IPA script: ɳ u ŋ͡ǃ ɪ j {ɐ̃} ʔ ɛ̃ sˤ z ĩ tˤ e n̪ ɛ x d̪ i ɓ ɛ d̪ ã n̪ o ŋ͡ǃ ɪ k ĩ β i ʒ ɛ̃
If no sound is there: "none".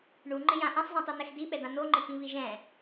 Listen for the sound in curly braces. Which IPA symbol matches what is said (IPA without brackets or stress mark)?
ã